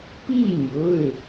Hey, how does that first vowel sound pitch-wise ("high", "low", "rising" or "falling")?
falling